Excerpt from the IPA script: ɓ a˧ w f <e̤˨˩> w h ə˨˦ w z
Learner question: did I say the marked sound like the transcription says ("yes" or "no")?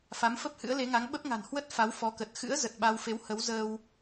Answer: no